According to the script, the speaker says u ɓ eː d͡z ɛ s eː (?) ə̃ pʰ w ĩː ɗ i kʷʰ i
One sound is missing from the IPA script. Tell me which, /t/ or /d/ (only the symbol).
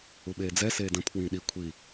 d